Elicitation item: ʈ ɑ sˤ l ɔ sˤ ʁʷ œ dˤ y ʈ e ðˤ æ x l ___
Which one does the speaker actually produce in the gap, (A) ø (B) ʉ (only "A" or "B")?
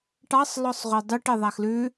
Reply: B